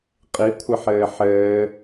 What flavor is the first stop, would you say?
ejective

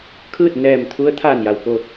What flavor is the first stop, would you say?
aspirated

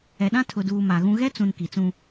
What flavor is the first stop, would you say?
implosive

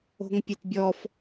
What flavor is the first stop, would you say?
plain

